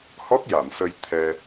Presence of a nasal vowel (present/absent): absent